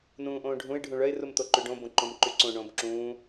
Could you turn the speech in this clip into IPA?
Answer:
n ũː ʔ õː ɖʱ ũ ɪ̯ ɖʱ ũ ɭ œ ɪ̯ r u m t̪ o ǃ y ɖ õ b õ ǃ õ m ǃ y ǀ õ ɳ õː b ǁ ũː

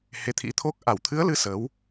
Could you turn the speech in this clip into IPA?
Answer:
h e˨˦ t̪ʰ ḭ˧˥ t̪ʰ o˦˥ k̚ ʔ a˧˩ w t̪ʰ ɨ˨˦ ə̯ l ɨ˨˦ s ə˨˦ w

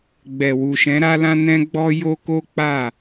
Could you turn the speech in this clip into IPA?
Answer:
ɡ͡b ɛ˨ w u˨ ʃ ɛ̃˨˦ ɾ a˦ l ã˦ n ɛ̃˦ ɡ͡b ɔ˦ j o˦ k o˦ k͡p a˦˨

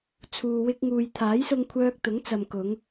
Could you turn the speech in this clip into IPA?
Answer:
t͡sʰ uː˨ w ɪ˧ k̚ ŋ uː˨ j t̪ʰ aː˨˥ j s ʊ˧ ŋ kʷʰ œː˧ k̚ t̪ ʊ˨˥ ŋ t͡s ɐ˨ m k ʊ˨˧ ŋ

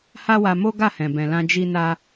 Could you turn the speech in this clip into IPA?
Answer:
h a˦ w a˧ m o˦ ɡ a˦˨ h ɛ̃˨ b ɛ̃˨ l ã˧ d͡ʒ i˦ n a˦

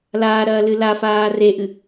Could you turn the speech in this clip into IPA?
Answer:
l aː ɾ ɐː l ɨ l a f aː r e ʔ ɨ

